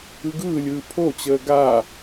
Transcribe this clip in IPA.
ɯɡɯːlʲɯː pʰot͡ɕəː ɡa

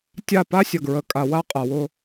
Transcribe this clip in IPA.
tʲa˦˨ pa˦sʲə˨ɡɹə˨kʼa˨ wa˦qʼa˨wʊ˦

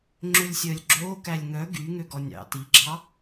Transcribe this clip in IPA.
ŋ͡ǁølʲsʲœːlʲɡ͡ǁoː kælʲŋœ ɡy ŋøɡɔnʲɑ̰ tiɡ͡ǁɑ

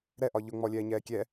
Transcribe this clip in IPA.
ɾɛʔɒ ʎʊŋ͡mɔlʲɛːɲɛː kʲɛ

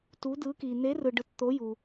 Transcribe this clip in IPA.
tu˨˥dɯ˨˥ki˨ n̪e˨˥rɯ˨ɖɯ˨t t̪o˨˥ju˨

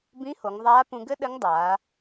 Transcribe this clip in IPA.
bĩ˧˥ho˩˧ŋðˤaː˧˥ pũ˧ɡɘ˥ ɗɘ˧˥ŋdˤaː˩˧

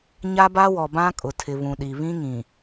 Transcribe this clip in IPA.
ɲa˦ba˦wɔ˨ bã˦kʼʊ˨tʰɪ˨ βũ˨ɗi˨βĩ˦ŋĩ˨

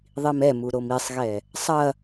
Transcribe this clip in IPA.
ðˤimɛmu ɾomisˤɣɛ | sˤɐ

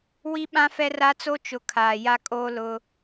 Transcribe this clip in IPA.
wi˦ɓã˦ fɛ˦ra˦t͡so˦ t͡ʃʊ˨ kʰaː˨ja˦kʼoː˦ lʊ˦

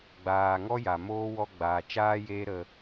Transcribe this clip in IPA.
ɡ͡baː˨ ŋɔ˦ja˨moː˦ wɔ˧ɡ͡baː˨t͡ʃaː˦ jeː˦ ɾə˧

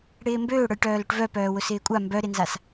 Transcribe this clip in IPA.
ɽɪːmbøːɽœj ʈœːlʊʈvœpœː wʊsɪːkʷʼa mbœɾɪnzas

